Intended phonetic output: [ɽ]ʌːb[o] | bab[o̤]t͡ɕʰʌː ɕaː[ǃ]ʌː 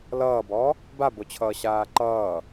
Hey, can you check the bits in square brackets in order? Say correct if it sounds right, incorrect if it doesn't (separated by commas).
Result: incorrect, incorrect, incorrect, correct